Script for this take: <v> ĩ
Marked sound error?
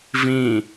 no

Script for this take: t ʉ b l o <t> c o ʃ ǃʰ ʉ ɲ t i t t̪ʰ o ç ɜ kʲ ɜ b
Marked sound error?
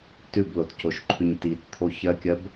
no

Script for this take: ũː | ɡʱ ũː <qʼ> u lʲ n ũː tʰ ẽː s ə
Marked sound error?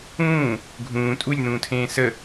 yes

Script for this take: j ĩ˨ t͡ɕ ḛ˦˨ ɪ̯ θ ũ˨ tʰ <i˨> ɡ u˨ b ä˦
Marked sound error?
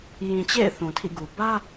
yes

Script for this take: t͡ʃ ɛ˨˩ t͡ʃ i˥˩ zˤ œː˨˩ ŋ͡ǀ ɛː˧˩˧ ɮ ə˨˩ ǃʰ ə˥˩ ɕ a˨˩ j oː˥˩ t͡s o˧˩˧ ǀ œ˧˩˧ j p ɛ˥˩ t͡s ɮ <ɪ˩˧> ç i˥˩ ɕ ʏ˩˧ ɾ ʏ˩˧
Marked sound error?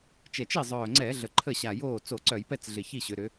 yes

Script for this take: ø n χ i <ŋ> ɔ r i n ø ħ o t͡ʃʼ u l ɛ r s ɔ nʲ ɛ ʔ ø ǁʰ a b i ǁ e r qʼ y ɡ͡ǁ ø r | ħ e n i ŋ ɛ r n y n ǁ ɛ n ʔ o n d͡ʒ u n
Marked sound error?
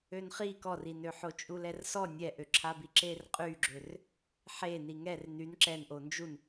yes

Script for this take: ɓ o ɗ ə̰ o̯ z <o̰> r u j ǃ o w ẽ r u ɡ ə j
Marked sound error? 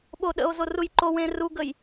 yes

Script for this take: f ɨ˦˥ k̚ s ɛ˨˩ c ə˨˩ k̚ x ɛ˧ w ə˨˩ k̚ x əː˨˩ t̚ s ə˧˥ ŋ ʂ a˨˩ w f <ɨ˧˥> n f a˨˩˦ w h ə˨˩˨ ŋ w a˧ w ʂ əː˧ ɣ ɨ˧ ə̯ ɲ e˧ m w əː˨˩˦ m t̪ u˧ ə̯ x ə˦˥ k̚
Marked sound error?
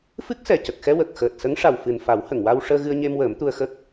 yes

